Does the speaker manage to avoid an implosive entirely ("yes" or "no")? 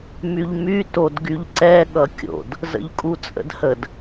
no